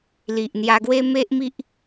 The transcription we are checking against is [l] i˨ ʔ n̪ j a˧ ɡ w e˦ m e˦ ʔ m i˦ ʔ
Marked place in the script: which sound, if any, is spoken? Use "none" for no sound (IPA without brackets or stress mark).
l